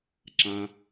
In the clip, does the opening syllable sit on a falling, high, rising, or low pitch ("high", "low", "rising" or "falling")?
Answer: low